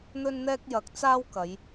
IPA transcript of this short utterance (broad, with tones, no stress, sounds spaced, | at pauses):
n̪ ɵ˥ n n̪ ɛː˥ k̚ j ɐ˨˥ k̚ t͡s aː˥ w k ɐ˨˧ j